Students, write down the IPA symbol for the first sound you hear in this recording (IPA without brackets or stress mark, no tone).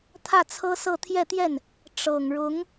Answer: t̪ʰ